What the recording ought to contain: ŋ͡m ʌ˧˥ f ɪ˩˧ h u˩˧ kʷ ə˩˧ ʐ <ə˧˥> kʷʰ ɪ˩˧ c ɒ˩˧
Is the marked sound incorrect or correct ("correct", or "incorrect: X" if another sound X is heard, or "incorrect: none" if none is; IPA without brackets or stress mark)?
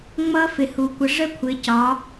correct